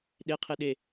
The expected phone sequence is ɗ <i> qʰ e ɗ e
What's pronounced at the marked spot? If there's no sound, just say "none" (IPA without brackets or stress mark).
e